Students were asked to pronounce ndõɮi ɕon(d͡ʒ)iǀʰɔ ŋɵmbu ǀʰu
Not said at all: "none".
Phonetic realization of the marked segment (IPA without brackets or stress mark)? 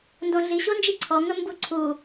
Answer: d͡ʒ